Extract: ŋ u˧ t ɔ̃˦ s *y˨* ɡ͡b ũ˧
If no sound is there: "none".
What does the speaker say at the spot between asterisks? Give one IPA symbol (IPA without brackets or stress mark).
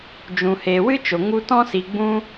i˨